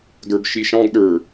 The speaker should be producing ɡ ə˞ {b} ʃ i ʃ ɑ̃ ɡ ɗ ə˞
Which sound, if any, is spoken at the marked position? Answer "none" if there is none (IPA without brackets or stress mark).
b